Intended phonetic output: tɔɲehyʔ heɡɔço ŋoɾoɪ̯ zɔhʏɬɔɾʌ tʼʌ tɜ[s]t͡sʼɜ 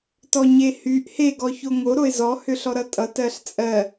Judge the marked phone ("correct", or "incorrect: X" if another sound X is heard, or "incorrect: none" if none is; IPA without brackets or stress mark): incorrect: ɬ